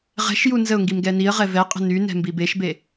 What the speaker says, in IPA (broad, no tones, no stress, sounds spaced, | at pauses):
ʁ ɛ̤ ʃ j u n z ə ʊ̯ ŋ ɡ i m ɡ ɛ n i ə̯ ʁ ɛ v ɛ qʼ ə̤ n y n ɛ̤ m b i b e ʃ b e